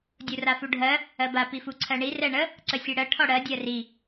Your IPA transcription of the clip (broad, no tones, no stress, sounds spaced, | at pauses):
dʲ u r a f u ɖʱ ɜ | ɜ b a p i f u ǀʰ ɜ ɳ i r ɛ ɳ ə | ǀ ə sʲ ɛ ɽ ɜ ʈʰ ɔ ɽ ɜ dʲ ɜ r i